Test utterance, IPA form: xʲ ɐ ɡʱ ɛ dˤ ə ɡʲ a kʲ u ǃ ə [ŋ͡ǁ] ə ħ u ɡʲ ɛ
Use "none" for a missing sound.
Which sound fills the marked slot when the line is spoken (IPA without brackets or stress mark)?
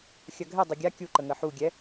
ŋ